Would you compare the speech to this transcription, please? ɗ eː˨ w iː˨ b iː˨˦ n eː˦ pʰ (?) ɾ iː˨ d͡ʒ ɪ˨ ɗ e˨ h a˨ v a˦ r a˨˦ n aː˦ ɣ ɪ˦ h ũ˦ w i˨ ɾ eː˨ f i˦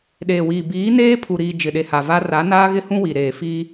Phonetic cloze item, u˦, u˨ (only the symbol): u˨